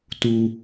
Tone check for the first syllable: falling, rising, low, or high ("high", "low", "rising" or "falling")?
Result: low